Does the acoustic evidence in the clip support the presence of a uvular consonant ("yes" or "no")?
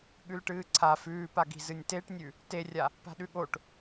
no